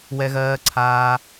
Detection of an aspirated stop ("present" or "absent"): present